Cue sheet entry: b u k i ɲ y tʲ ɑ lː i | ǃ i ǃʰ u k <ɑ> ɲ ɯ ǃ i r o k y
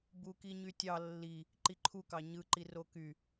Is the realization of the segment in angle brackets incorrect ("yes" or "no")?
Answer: no